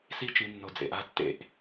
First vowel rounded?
no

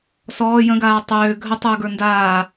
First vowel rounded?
yes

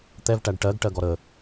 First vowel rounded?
no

